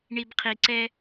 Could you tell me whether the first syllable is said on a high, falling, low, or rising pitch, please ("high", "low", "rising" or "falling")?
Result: low